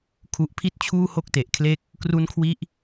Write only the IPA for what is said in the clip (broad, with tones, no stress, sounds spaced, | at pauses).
kʰ u˨˩ ʔ pʰ i˦˥ t̚ t͡ɕʰ uː˥˩ h o˥˩ k̚ t e˨˩ ʔ kʰ l e˦˥ k̚ | k r u˦˥ n kʰ w i˦˥ ʔ